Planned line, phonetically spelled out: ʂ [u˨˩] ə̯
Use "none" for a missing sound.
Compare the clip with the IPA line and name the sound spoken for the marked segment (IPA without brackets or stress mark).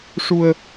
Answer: u˧